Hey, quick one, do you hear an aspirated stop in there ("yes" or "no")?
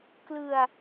no